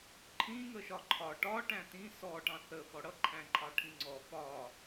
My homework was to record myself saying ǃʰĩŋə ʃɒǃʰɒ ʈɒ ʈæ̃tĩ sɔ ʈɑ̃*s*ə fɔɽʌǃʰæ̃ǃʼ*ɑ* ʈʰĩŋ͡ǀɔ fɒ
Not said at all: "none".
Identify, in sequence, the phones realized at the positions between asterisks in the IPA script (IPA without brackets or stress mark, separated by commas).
θ, ɑ